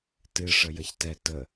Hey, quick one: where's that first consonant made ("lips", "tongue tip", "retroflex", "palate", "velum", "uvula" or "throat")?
tongue tip